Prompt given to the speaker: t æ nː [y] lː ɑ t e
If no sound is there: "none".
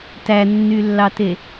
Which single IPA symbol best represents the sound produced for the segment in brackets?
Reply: y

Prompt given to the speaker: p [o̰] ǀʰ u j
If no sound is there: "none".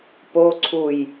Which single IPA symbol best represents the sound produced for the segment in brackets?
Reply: o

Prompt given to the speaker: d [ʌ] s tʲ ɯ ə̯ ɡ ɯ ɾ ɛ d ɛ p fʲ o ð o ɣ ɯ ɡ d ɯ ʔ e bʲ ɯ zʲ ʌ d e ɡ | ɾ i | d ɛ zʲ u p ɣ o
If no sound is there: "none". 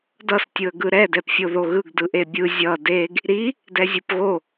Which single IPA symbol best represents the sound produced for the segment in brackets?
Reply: ʌ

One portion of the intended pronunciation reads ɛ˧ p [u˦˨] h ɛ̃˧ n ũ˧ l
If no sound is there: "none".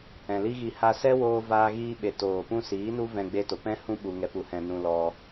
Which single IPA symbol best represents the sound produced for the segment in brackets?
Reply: u˧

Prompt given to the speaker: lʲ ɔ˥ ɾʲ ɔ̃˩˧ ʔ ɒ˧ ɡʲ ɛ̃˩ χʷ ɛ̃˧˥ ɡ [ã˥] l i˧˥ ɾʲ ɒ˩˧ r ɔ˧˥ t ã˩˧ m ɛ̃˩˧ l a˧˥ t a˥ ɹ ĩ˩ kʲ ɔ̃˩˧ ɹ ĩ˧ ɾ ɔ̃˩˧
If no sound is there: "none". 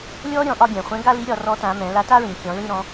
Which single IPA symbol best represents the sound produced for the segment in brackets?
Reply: a˥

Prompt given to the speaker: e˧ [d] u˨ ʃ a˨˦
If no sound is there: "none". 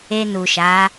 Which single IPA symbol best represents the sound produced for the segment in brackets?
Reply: n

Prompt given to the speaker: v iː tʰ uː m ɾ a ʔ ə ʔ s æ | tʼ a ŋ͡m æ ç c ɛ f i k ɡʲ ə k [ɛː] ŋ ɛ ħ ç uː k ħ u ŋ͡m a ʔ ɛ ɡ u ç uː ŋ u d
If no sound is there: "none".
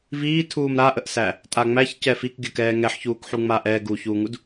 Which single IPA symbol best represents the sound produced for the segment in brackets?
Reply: ɛː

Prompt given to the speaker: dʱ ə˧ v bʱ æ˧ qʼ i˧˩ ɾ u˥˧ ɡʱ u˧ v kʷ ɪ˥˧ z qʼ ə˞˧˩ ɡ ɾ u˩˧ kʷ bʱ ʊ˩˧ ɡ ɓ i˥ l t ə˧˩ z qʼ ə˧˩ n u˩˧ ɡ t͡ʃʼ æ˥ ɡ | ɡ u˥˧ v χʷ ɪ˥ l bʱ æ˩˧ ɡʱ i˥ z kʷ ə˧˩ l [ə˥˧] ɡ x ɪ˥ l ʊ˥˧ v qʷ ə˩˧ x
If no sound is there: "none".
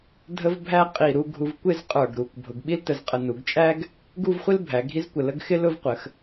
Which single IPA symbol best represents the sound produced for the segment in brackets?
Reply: ə˥˧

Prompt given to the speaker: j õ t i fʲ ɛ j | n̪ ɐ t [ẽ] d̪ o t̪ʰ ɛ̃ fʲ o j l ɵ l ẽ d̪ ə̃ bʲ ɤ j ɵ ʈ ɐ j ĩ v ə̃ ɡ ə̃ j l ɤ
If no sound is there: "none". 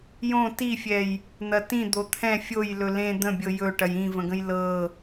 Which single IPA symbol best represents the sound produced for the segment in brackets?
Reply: ĩ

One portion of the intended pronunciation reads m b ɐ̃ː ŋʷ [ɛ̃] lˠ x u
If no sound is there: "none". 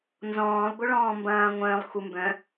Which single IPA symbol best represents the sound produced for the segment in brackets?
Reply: œ̃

